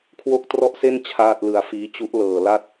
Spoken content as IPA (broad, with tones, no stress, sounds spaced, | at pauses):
kʰ w o˥˩ k̚ t r ɔ˥˩ ʔ s e˥˩ n t͡ɕʰ aː˥˩ t̚ l ɯ˧ a̯ f iː˦˥ t͡ɕ u˦˥ ʔ l ɤː˨˩ l a˥˩ t̚